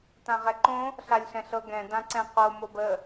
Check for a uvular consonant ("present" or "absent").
present